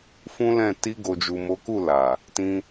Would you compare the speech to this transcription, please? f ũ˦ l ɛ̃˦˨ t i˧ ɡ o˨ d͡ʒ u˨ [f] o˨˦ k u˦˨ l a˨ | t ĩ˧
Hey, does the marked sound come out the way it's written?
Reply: no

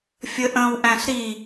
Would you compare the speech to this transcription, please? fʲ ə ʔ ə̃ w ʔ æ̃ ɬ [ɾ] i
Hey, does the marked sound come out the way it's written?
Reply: yes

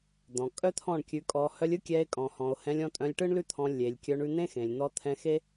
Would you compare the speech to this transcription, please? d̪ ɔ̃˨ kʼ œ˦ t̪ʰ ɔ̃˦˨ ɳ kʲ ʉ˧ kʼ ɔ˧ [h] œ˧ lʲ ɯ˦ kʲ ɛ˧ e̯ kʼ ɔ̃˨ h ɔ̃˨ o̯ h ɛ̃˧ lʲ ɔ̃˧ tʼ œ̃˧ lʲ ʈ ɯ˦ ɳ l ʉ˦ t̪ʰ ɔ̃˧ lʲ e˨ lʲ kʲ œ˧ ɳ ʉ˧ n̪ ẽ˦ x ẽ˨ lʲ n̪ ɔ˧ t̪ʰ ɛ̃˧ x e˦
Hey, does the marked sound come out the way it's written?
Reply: yes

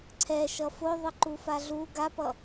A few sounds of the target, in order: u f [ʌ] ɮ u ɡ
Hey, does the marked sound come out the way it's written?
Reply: no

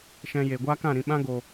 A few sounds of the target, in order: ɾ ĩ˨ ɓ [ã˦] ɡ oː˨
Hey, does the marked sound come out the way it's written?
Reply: yes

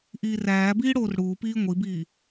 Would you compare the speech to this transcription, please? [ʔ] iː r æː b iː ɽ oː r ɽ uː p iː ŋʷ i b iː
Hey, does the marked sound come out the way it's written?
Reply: yes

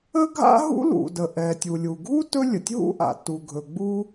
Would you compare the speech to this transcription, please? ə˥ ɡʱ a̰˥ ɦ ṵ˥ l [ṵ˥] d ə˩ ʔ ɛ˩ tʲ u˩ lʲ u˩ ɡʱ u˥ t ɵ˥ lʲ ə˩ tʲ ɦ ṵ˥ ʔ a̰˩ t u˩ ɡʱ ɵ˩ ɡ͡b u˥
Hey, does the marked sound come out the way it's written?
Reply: no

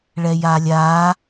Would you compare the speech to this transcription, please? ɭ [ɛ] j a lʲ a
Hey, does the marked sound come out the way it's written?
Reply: yes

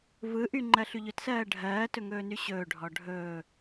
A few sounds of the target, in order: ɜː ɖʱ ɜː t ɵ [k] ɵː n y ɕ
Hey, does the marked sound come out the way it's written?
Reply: no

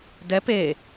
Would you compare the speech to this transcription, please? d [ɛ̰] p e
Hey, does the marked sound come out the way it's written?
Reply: no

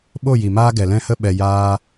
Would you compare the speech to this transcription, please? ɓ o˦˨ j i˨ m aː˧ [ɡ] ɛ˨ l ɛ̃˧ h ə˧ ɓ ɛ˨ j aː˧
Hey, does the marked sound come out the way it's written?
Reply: yes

